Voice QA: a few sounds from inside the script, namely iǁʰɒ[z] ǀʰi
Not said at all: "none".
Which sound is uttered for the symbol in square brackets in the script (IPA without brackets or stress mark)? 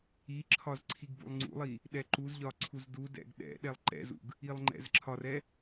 z